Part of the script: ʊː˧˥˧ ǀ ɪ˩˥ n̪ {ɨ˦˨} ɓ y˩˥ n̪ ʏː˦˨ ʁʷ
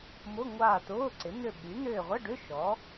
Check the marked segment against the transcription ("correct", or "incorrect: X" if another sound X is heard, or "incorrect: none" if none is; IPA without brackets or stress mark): incorrect: ʏ˦˨